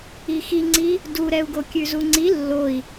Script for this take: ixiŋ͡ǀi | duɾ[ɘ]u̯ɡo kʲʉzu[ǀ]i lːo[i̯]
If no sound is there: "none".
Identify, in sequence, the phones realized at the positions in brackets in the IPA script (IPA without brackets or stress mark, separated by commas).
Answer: ɛ, ŋ͡ǀ, i̯